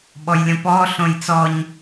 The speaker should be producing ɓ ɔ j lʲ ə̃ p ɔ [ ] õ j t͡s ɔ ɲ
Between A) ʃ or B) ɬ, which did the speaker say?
B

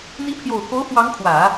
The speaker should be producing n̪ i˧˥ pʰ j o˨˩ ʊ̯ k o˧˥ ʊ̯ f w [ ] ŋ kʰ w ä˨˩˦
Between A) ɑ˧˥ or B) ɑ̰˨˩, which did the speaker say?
A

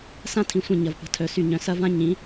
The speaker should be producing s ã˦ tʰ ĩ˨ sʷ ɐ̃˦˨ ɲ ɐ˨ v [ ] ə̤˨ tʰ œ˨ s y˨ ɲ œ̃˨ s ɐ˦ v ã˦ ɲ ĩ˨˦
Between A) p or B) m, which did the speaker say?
A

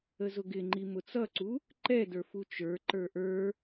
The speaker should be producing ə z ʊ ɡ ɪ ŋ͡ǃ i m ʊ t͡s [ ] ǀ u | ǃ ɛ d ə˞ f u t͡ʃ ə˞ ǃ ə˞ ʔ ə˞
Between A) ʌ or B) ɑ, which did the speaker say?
A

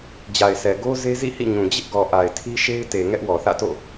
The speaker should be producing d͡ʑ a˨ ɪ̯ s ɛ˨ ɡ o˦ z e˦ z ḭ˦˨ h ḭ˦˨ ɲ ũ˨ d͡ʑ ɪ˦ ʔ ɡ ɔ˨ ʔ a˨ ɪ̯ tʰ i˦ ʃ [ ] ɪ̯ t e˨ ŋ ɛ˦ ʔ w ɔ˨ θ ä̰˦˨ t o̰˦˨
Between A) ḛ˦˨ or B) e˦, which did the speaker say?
B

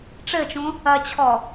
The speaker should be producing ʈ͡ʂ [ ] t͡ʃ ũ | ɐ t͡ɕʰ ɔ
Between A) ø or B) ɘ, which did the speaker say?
B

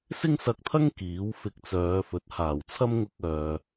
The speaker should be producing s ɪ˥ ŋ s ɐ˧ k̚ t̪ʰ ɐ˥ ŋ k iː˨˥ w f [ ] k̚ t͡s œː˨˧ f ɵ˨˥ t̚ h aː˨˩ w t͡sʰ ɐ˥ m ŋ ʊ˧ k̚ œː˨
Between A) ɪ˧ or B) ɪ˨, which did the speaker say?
A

